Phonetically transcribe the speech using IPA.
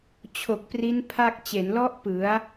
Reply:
t͡ɕʰo˨˩k̚pri˦˥n pʰa˥˩k̚ t͡ɕe˩˦nlɔ˦˥ʔ pɯ˩˦a̯

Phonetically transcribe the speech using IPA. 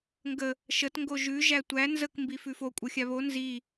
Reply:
ŋɡə | ʃət ŋɡoʒʉ ʒætʷæ nzək mbifʉfo kʷʼɤxʲaβo nzi

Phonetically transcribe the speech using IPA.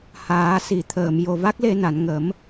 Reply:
haː˨˩˦si˨˩˨ t̪ʰəː˨˩˨m jo˨˩va˦˥k̚le˧na˨˩˨n ŋə˨˩˦m

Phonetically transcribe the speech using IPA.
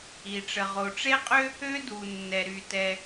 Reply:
i˩ ʈ͡ʂə˩ʁo˩ʈ͡ʂe˥qʼø˥ | ø˥du˩ nːɛ˩ɾy˩tɛ˩

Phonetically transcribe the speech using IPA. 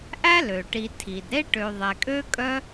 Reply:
ʔæ˥lø˩ʈi˨ tʰi˩dɾe˥ʈø˨ ðˤɛ˨kʼø˥kʼœ˥

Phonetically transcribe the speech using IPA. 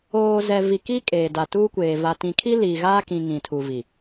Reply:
oː˨zɛ˨ vi˨ki˦ kʼeː˨da˨tuː˦kʷeː˨ va˨tĩ˨ kʰi˦ liː˨ɣaː˦kĩ˨ ŋĩ˨tʰu˨vi˨

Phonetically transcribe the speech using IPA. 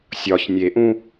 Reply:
sʲɒç nʲeʔũ

